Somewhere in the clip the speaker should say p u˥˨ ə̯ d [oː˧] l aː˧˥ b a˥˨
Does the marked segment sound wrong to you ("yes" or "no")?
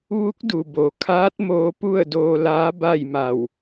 no